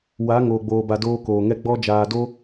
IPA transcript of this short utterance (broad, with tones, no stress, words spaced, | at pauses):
wa˨˦ ŋoː˨ɡ͡boː˨ba˨ doː˧koː˨ŋɛ˧ ɡ͡bɔ˧ d͡ʒaː˨do˧